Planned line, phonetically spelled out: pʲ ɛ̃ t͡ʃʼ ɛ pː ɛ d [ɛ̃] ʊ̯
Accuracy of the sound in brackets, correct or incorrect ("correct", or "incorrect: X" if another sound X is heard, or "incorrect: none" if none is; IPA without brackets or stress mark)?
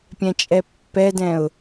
correct